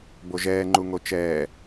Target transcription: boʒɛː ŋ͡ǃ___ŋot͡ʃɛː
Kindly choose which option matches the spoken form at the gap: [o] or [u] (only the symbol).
u